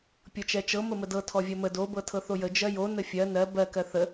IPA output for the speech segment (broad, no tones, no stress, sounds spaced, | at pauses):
pʲ ɤ t͡ʃ ɛ t͡ʃ ɤ m ə m ə d ɤ tʰ ɔ vʲ ɜ m ə d o b ɤ tʰ ɤ θ o j ə d͡ʒ ɜ j o n ə fʲ ɜ n ɜ b ɜ k ɜ θ ə